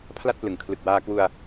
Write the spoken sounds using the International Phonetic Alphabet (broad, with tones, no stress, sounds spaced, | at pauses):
pʰ l a˥˩ t̚ p l ɯ˩˦ ŋ kʰ l ɯ˨˩ k̚ w aː˧ k w u˧ a̯